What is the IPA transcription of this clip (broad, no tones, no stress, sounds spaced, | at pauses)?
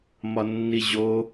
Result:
m ɒ nː i ʑ o